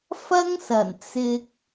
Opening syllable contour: high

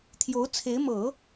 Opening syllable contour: rising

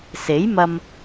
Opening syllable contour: rising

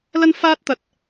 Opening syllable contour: high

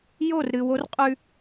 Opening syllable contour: falling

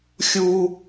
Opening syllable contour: high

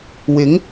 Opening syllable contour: rising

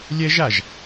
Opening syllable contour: high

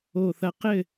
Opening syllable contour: low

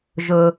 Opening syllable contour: low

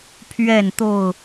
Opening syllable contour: falling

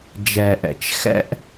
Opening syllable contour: low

